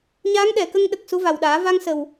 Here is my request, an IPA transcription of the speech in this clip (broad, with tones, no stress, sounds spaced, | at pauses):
ɲ aː˧˥ ŋ ɗ ɛ˨˩˨ k ə˧ ŋ ɗ ə˨˩ k̚ s u˧˥ v a˨˩ w ɗ aː˨˩˦ v a˧ ŋ s ə˨˩ w